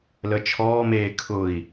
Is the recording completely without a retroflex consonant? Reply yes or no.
yes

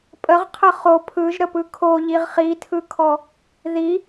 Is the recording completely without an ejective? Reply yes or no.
no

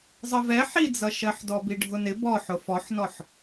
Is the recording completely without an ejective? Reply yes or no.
yes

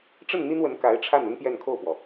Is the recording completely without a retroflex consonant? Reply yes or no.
no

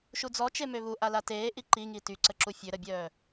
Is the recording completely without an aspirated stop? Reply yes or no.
yes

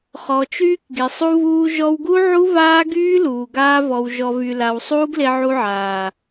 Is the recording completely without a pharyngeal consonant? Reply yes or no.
no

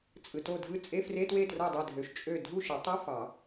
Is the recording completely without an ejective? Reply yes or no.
no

